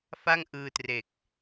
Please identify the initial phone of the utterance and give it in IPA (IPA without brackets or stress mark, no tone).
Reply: f